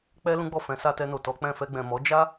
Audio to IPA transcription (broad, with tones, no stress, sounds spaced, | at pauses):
k͡p ɛ˦ l ũ˦ ɡ͡b ɔ˦˨ f ɛ̃˨˦ s a˧ t ɛ˧ n o˨ t ɔ˨˦ k͡p ɛ̃˦˨ f ɛ˧ ɡ͡b ɛ̃˨ m ɔ˨˦ d͡ʒ a˦